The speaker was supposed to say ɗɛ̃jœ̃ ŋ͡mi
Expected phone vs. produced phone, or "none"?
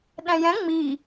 œ̃ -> ɛ̃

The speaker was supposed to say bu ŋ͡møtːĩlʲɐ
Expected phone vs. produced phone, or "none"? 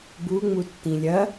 ø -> u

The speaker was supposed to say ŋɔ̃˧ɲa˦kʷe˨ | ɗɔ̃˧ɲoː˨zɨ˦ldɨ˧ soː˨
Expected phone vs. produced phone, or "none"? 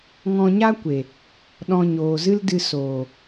none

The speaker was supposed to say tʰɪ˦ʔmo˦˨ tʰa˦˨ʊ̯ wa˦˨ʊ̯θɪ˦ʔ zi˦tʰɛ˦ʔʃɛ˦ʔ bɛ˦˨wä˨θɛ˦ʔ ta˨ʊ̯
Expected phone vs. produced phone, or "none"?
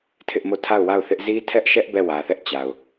t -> t͡ɕ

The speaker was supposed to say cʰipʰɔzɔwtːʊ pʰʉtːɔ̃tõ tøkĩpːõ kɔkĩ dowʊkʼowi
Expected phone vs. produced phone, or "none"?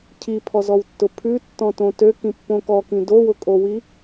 none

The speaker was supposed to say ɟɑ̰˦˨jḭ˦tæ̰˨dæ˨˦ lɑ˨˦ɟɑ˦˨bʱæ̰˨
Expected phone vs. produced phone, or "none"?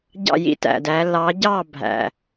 none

